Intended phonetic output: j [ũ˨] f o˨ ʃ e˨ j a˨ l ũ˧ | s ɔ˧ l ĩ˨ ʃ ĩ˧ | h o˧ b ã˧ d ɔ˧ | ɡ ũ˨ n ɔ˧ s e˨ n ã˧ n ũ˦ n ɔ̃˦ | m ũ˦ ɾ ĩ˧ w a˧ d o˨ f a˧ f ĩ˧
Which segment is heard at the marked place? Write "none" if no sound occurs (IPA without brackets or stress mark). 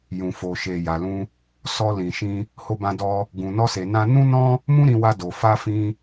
ũ˨